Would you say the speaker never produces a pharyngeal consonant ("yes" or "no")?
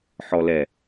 no